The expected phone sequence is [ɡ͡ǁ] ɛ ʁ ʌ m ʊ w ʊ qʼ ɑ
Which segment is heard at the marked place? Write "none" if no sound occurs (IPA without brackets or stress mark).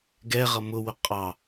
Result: ɡ